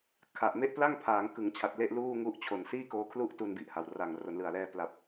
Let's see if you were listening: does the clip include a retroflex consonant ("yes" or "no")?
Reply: no